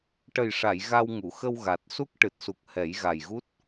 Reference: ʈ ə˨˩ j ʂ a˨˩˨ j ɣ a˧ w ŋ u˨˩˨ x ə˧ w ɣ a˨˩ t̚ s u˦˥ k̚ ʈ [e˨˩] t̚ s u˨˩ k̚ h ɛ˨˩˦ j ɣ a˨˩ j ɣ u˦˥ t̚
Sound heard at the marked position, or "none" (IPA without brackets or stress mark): ɨ˨˩